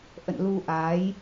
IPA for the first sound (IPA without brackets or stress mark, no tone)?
ʔ